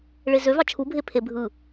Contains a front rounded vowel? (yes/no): yes